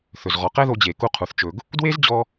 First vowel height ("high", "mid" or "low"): mid